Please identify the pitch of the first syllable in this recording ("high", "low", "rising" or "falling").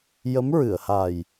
rising